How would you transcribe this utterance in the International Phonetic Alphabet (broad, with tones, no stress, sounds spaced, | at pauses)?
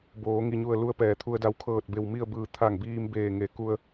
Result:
b oː˩˧ ŋ i˧˩ ɲ u˧˩ ə̯ l u˧˥ ə̯ p ɛː˩ t̪ʰ u˧ ə̯ d a˧ w kʰ ɤː˧˩ t̚ b e˧˩ w m i˥˨ ə̯ b ɯː˧˩ t̪ʰ a˧˩ ŋ b iː˧ m b eː˧˩ ŋ e˩˧ k u˧ ə̯